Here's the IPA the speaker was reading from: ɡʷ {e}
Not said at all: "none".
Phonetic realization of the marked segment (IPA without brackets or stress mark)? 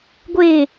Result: e